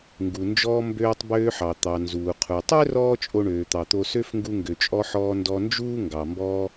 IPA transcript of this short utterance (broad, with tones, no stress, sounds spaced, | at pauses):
ŋ ɡ u˩ n d͡ʒ ɔː˧ m b øː˧ tˤ b øː˧ ħ ɑ˩ t̪ ɑ˩ n z uː˩ qʰ u˩ tˤ ø˥ r ɔː˥ t͡ʃʼ o˧ ɳ øː˩ t̪ ɑ˩ t̪ o˧ s ø˥ f ŋ ɡ u˧ ŋ ɡ ø˩ t͡ʃʼ ɔ˧ ħ ɔː˧ n d ɔ˧ n d͡ʒ uː˥ ŋ ɡ ɑ˩ m b ɔː˧